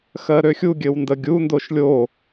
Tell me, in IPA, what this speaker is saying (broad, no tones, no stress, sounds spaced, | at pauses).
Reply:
x ɜ ɾ ø xʲ u ɡʲ ɘ w n d ə ɡʲ u n d o ʃ lʲ o